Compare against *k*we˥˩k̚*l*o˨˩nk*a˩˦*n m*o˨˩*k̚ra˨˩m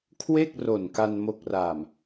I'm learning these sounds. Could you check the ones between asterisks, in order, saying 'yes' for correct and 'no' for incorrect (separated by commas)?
no, no, no, yes